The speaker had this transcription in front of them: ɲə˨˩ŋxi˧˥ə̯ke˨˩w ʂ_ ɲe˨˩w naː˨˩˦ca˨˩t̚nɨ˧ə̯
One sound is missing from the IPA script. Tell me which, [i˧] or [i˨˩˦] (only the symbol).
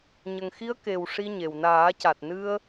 i˧